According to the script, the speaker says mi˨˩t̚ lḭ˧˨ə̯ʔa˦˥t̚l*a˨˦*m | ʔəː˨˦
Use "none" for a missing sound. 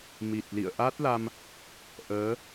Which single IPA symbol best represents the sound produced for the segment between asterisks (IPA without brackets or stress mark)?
a˧